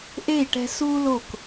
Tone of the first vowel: falling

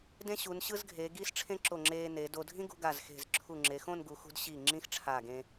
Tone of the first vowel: high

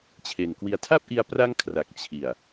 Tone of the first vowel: low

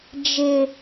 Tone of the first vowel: high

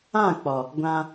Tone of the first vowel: falling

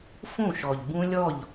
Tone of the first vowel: falling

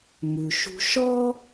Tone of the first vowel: low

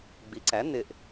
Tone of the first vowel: rising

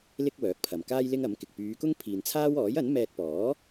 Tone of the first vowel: high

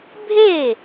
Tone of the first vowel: falling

